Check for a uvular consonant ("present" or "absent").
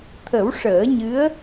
absent